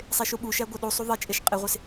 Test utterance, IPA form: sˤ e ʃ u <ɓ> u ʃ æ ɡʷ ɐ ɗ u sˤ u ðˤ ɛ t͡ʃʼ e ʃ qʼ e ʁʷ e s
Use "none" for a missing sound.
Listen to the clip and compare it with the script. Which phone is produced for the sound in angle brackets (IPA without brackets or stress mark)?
ɓ